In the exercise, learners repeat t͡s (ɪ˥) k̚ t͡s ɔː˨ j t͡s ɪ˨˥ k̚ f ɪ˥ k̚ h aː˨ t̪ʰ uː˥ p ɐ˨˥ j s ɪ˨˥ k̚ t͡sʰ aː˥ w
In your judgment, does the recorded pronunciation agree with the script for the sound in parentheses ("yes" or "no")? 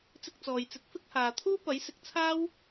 no